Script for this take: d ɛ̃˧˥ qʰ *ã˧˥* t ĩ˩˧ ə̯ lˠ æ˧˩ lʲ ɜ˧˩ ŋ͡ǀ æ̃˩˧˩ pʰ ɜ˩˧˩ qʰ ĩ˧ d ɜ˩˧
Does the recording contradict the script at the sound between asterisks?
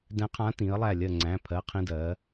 no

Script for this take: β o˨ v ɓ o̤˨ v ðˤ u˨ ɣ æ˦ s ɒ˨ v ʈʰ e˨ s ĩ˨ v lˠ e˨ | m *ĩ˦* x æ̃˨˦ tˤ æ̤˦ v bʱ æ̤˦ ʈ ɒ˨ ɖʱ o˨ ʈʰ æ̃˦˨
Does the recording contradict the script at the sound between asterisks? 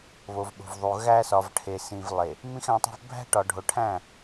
no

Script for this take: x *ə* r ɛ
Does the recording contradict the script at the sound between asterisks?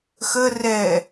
no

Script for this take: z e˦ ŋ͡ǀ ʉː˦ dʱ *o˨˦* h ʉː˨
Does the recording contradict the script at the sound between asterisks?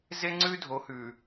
no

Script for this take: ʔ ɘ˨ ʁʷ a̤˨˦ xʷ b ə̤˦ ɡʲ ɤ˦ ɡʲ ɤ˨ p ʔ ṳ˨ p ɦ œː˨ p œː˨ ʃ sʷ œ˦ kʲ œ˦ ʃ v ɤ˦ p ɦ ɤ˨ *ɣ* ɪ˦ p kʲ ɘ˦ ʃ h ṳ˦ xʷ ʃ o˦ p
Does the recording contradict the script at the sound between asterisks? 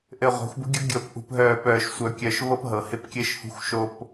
yes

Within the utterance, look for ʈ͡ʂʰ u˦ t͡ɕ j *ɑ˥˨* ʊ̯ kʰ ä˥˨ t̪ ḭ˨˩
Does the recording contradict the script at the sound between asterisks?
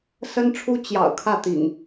yes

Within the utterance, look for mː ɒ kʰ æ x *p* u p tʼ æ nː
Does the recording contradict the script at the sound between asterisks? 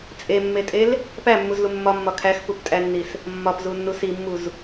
no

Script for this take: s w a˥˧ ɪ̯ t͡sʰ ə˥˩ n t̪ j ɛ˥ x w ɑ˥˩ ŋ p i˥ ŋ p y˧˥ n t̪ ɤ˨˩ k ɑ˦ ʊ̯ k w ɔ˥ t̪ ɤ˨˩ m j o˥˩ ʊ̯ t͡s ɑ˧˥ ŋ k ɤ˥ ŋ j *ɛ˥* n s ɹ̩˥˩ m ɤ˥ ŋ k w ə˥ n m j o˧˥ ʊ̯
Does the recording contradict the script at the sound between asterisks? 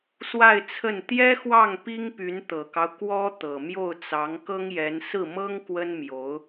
yes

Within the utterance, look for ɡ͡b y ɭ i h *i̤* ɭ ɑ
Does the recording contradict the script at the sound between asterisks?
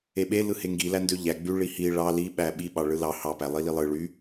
yes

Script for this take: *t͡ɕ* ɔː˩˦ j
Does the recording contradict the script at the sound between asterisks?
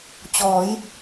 no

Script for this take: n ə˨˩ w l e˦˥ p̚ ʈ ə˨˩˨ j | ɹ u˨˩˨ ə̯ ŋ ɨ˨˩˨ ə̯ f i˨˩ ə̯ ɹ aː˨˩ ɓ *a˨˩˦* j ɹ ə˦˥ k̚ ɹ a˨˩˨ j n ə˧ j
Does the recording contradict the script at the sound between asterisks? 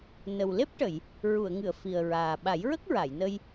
no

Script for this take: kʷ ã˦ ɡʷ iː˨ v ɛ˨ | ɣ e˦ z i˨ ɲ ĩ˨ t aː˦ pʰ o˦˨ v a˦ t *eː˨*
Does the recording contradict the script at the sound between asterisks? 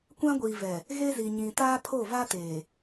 no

